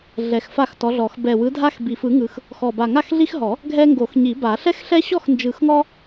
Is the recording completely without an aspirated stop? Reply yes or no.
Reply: yes